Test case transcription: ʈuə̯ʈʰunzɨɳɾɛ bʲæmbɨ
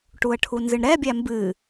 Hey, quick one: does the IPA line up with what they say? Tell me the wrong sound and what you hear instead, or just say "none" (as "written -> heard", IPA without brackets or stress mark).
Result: none